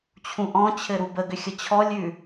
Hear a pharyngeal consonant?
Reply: no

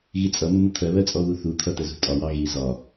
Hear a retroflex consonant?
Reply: no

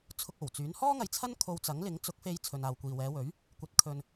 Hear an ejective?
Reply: no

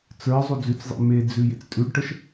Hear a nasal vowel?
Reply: no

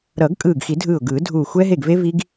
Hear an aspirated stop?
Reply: no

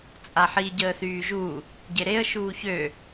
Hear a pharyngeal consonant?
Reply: yes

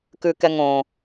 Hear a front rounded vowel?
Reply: no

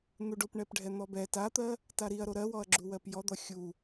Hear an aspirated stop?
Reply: no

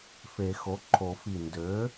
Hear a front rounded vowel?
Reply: yes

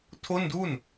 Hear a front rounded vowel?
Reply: no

